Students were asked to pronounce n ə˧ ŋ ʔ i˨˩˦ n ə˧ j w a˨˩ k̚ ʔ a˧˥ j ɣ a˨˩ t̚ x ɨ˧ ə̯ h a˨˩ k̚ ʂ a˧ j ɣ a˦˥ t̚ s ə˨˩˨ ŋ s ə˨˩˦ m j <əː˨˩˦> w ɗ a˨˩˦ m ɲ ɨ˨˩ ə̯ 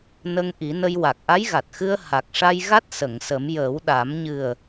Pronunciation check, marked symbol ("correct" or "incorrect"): correct